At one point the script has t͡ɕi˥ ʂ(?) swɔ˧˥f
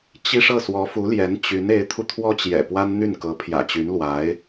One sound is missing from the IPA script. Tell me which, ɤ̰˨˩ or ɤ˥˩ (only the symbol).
ɤ˥˩